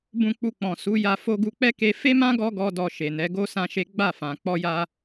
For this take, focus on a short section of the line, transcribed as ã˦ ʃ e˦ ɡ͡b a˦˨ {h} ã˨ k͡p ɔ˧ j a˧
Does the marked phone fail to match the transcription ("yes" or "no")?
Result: yes